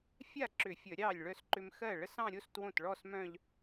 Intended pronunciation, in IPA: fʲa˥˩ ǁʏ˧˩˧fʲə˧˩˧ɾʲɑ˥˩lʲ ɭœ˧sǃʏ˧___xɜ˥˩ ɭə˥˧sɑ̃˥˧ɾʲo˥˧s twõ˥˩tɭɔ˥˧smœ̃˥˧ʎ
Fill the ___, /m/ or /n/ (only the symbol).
m